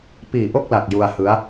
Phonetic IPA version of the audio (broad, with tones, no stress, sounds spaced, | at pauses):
p iː˨˩ ʔ o˥˩ k̚ l a˨˩ k̚ j u˧ a̯ h ɯ˦˥ a̯